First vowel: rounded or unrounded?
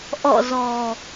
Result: rounded